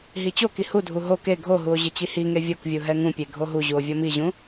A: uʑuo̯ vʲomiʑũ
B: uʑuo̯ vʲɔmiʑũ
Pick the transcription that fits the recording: B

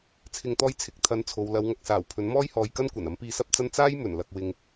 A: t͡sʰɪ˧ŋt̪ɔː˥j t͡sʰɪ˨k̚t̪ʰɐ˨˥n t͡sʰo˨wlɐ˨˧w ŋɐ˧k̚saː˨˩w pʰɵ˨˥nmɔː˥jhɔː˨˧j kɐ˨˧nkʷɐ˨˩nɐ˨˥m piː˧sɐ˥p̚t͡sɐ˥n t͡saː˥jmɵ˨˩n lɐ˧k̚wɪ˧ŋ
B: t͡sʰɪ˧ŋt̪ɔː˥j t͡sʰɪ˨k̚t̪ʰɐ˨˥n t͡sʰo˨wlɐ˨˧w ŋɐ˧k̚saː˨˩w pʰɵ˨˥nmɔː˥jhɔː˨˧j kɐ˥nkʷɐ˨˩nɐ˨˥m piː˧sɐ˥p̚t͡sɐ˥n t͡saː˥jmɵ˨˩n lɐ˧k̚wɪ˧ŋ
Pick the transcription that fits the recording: B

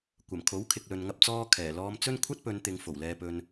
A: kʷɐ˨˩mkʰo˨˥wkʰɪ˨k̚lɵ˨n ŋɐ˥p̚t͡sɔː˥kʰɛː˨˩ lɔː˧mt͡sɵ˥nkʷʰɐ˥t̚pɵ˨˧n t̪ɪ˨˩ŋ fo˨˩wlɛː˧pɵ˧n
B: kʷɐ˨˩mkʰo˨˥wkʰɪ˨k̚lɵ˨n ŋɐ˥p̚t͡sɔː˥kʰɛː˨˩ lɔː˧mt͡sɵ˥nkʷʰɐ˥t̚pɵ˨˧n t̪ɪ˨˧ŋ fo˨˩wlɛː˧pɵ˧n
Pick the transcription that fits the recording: B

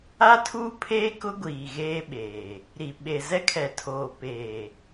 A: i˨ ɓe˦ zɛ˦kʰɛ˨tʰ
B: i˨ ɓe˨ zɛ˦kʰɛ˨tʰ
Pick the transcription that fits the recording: B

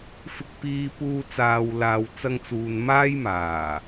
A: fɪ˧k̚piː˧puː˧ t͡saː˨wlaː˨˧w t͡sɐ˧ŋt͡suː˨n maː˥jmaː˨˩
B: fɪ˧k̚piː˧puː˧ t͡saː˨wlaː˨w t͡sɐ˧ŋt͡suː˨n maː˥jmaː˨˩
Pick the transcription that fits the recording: B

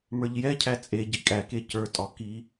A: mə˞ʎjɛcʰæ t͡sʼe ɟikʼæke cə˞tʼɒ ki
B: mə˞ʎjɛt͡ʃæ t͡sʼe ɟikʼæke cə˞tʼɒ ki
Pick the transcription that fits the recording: A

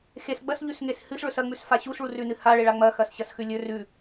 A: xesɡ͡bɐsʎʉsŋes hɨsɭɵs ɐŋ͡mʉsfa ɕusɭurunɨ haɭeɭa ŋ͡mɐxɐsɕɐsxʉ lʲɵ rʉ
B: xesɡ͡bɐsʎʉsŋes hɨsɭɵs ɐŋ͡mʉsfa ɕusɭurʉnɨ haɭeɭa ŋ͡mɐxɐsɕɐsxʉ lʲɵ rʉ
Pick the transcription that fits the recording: B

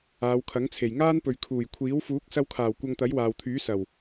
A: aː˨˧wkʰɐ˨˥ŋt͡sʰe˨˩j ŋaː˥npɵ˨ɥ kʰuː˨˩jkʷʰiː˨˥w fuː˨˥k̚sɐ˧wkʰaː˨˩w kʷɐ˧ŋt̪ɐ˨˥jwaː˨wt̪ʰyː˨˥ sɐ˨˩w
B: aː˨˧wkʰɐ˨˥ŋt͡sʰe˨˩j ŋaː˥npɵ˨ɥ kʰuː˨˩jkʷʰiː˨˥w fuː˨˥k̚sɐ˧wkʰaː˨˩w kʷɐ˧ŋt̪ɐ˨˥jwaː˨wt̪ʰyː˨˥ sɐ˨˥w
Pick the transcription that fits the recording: A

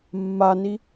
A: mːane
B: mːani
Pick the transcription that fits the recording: B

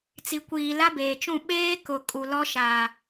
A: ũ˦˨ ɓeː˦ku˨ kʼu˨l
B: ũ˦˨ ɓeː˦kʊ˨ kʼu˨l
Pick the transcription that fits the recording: B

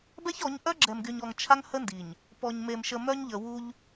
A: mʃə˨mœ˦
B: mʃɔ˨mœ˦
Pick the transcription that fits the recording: A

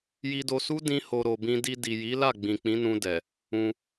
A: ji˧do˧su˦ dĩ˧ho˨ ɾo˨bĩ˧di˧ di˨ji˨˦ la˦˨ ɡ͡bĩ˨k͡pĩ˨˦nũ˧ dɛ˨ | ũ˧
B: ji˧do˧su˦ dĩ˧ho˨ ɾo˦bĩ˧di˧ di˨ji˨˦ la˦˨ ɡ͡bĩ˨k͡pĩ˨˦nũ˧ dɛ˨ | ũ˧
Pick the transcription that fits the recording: A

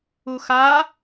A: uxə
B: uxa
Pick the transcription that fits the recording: B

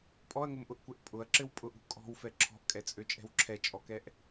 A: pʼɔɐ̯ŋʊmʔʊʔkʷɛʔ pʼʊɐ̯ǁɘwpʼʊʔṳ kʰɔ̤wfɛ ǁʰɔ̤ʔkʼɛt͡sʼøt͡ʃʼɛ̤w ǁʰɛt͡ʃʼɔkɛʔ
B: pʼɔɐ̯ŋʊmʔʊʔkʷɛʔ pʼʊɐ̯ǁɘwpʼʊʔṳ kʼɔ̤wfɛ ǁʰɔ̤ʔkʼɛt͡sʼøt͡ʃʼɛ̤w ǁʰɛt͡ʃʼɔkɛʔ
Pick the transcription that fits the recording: B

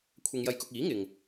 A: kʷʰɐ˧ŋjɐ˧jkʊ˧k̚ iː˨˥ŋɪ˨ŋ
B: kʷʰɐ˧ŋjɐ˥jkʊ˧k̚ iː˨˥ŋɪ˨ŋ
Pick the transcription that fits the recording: A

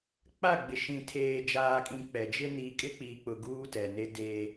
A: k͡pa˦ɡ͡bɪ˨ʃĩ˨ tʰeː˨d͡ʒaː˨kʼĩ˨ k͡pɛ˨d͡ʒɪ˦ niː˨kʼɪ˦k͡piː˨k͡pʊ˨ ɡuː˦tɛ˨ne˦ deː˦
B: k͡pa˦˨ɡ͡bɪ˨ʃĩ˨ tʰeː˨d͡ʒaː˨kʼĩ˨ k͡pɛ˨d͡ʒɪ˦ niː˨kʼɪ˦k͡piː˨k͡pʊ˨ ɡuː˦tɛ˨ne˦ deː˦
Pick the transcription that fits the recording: B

